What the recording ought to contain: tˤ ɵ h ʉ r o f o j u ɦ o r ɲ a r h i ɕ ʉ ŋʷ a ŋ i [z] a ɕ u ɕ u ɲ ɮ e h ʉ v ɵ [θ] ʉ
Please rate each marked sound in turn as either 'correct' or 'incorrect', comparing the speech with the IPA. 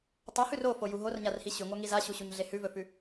correct, incorrect

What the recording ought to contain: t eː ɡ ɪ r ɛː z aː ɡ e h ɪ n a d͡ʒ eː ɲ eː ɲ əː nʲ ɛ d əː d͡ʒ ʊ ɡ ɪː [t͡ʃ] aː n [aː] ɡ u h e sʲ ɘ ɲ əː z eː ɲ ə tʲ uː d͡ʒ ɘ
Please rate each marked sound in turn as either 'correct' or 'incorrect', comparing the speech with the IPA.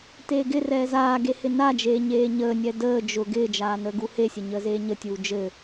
incorrect, incorrect

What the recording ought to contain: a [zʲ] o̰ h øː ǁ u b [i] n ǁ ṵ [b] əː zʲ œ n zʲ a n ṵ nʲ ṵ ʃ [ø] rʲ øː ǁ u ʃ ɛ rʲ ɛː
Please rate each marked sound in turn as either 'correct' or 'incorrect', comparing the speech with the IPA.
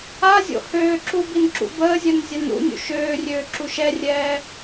correct, correct, correct, incorrect

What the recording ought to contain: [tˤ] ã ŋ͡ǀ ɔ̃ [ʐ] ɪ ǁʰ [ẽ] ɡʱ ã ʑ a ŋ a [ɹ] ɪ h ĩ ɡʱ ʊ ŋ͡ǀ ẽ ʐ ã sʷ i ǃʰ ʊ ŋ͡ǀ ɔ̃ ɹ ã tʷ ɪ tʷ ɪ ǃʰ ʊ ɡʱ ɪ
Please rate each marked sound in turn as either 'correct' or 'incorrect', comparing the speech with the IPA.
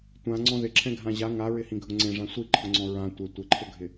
incorrect, incorrect, incorrect, correct

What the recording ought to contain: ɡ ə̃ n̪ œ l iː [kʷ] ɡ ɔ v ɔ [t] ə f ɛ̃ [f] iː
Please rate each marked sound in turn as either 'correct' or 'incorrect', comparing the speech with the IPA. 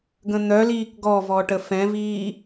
incorrect, incorrect, incorrect

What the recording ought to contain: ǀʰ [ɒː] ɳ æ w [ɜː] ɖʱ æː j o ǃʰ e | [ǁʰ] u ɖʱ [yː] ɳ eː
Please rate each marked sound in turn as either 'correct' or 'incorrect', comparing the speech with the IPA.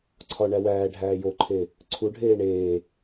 incorrect, incorrect, incorrect, incorrect

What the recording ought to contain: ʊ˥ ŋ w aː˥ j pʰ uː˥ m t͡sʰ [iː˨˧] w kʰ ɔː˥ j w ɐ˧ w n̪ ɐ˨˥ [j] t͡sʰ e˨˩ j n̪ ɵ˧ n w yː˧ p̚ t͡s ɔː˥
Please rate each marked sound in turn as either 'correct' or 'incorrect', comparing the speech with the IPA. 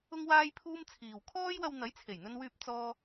incorrect, correct

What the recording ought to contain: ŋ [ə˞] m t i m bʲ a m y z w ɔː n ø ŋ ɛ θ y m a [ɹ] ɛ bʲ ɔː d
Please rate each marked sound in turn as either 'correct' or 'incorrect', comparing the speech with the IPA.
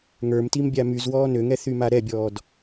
correct, incorrect

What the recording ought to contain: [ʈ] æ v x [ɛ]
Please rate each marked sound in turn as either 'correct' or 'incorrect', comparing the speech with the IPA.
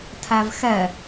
incorrect, correct

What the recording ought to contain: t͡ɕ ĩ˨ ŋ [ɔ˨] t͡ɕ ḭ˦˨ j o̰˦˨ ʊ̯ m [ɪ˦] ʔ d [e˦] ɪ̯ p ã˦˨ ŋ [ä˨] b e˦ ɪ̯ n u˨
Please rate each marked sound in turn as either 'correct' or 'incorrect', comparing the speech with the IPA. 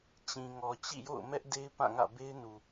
correct, incorrect, correct, incorrect

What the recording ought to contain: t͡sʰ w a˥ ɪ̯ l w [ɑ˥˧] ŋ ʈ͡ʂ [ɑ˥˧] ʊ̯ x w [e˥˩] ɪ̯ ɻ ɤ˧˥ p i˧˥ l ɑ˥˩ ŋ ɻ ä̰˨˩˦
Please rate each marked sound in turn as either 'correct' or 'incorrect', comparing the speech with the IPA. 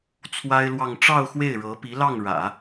correct, correct, correct

